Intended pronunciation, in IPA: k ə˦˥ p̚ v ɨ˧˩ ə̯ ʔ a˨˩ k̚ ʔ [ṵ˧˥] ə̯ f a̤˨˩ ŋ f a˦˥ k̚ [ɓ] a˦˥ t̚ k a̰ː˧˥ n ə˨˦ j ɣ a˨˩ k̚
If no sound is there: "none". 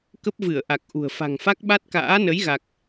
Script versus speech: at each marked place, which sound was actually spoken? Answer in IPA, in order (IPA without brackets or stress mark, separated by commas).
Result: ṳ˨˩, ɓ